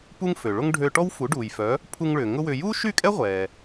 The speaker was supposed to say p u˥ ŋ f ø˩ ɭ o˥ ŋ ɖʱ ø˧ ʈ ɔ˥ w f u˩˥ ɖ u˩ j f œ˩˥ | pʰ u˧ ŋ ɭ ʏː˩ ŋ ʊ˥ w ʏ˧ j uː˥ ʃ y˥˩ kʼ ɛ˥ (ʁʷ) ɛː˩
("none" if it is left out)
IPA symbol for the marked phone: ʁʷ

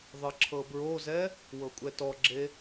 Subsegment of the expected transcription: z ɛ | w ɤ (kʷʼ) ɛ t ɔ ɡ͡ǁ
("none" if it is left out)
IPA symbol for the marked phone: kʷʼ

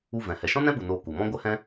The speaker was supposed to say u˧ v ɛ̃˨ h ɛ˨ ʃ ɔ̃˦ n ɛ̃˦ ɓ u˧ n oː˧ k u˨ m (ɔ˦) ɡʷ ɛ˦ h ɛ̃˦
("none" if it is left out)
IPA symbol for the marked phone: ɔ̃˦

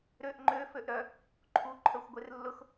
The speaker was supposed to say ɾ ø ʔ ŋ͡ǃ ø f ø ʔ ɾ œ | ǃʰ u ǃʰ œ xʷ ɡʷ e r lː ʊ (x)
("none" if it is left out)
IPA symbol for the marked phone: x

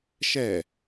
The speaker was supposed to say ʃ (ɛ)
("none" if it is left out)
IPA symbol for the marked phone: ɛ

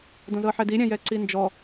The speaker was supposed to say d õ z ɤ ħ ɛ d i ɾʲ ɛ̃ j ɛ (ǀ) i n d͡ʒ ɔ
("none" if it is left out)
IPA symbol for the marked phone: ǀ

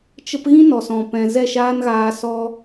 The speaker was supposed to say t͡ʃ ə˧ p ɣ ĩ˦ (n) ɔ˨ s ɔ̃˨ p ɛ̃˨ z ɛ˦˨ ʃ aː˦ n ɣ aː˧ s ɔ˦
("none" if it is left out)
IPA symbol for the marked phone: n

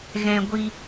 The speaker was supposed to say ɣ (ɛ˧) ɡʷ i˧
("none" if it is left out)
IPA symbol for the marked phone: ɛ̃˧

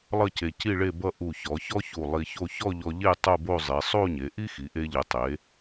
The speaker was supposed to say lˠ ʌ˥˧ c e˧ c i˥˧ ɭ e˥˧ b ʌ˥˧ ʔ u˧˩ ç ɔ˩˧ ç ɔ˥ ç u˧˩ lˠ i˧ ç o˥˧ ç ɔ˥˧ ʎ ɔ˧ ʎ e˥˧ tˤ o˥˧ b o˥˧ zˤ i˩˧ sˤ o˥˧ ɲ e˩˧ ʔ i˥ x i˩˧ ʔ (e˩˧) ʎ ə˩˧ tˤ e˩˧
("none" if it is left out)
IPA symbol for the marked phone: e˧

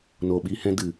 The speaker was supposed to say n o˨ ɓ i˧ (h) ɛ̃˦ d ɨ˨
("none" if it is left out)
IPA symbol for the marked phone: h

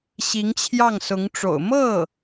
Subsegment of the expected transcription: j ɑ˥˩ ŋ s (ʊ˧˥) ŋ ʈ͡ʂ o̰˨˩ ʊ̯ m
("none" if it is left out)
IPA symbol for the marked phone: ʊ˧˥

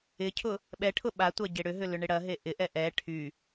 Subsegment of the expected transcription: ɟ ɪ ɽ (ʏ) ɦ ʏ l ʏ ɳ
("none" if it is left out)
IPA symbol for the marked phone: ʏ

